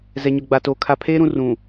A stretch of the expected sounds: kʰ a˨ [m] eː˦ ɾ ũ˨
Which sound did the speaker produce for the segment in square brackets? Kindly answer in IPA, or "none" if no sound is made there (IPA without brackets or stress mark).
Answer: pʰ